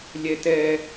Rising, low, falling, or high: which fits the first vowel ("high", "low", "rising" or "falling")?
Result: high